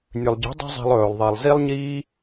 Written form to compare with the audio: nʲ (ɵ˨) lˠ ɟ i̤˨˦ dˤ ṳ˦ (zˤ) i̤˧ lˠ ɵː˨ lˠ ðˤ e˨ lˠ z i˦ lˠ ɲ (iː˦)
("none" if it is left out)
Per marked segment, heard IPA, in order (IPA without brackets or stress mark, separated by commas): ɵ˨, zˤ, iː˦